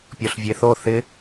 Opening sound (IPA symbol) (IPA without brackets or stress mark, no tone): pʲ